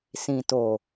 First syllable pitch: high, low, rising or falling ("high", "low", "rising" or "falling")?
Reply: low